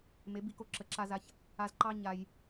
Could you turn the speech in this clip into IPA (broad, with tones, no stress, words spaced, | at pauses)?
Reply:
me˨˦bi˧ko˧ ǁə˨ǁa˧za˧ç | a˧zǃɑ˦ ɲa˧j